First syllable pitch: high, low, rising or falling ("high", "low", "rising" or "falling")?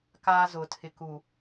high